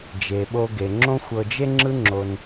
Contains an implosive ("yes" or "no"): yes